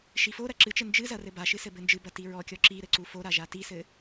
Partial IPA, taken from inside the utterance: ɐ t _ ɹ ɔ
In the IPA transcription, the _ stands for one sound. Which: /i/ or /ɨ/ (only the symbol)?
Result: i